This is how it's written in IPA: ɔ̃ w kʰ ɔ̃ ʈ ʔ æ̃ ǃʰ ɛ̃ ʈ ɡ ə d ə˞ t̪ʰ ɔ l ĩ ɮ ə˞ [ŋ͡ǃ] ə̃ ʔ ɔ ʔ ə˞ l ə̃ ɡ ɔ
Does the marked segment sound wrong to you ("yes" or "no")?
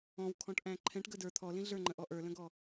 no